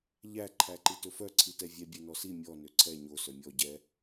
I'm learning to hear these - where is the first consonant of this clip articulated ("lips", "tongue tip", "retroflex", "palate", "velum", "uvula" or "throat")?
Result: palate